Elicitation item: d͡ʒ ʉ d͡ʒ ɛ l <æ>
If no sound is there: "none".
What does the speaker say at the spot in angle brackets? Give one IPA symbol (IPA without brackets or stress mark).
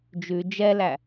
æ